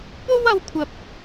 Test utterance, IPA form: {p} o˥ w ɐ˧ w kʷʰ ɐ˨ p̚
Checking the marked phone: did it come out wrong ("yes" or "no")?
no